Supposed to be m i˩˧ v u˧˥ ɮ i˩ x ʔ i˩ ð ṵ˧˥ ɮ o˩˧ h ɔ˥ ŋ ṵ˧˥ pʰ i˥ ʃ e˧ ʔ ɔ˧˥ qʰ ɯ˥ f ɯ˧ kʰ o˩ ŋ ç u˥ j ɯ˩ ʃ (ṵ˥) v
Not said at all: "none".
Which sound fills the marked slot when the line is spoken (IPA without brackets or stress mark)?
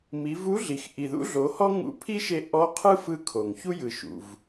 ṵ˩